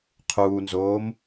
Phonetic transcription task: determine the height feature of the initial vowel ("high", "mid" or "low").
high